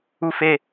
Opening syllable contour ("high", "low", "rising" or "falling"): high